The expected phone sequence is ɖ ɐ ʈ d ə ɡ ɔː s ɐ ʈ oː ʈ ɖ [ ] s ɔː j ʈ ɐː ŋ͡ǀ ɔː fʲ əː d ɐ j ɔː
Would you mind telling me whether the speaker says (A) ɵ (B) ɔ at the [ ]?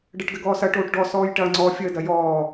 B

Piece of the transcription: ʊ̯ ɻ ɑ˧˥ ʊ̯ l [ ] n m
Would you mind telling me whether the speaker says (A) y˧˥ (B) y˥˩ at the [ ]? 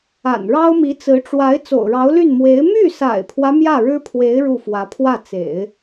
B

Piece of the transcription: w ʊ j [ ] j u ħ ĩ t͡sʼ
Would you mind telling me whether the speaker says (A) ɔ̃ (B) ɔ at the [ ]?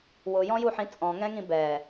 A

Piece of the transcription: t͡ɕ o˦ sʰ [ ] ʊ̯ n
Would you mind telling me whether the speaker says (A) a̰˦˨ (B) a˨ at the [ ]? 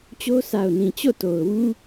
B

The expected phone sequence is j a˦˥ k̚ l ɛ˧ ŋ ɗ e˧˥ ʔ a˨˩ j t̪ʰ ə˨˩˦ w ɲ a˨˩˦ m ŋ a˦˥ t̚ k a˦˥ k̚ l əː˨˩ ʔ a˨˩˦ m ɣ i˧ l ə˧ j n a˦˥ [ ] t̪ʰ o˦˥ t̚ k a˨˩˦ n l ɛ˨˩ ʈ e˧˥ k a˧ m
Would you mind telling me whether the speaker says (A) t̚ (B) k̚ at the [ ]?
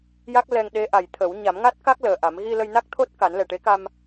B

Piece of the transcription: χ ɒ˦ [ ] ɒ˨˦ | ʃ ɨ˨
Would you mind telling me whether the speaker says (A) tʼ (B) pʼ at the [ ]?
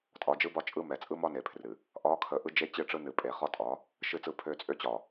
A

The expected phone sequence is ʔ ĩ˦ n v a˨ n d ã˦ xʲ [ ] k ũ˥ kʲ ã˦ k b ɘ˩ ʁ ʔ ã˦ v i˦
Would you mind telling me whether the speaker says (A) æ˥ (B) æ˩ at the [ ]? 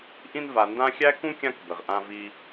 A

